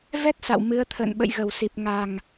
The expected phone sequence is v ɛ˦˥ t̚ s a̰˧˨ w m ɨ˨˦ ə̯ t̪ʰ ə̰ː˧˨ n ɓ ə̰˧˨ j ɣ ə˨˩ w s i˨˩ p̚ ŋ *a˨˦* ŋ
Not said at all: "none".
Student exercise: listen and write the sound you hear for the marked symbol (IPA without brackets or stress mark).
a˨˩